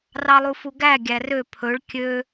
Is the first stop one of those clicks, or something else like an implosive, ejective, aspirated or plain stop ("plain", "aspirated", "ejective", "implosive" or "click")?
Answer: plain